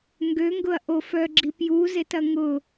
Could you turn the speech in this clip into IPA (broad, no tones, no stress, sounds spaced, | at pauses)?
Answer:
ŋ ɡ ø ŋ ɡ ʊ ɐ̯ ʔ o f œ ɡ͡ǁ i p j u z e t ɐ ŋ ʊ